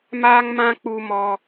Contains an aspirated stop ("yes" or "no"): no